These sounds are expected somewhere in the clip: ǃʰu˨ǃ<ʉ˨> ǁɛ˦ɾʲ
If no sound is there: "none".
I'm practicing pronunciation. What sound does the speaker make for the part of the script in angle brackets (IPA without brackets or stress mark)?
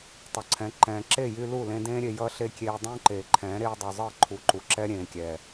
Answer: u˨